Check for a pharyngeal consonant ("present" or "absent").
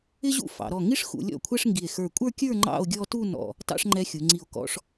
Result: absent